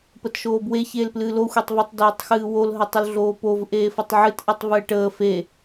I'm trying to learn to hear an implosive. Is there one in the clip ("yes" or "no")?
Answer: no